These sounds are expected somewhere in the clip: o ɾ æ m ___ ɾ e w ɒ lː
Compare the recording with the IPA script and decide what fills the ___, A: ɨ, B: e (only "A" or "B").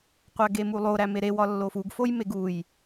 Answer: B